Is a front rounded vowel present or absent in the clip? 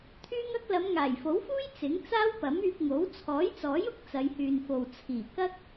present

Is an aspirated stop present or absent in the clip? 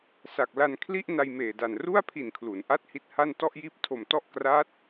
present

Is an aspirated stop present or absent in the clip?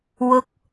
absent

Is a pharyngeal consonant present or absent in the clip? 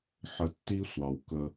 present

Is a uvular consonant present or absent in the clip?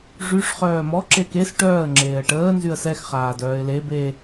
present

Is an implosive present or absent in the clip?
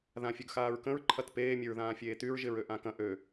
absent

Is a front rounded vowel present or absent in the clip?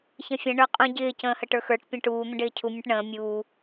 absent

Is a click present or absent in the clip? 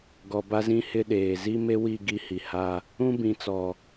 absent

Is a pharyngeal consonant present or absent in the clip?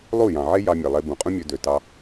present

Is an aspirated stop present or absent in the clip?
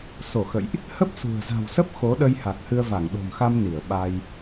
absent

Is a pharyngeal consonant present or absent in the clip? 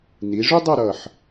present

